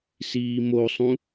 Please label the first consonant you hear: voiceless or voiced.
voiceless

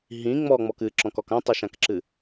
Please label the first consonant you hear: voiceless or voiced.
voiced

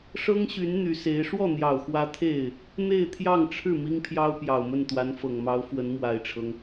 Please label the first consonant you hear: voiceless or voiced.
voiceless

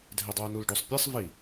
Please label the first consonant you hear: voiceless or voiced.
voiced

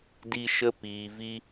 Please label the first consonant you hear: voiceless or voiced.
voiced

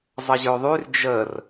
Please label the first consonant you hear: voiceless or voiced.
voiced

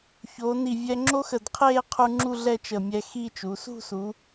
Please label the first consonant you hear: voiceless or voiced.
voiceless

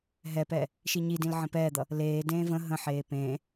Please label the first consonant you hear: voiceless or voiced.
voiced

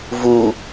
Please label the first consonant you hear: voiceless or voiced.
voiced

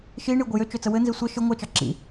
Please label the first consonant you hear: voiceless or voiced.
voiceless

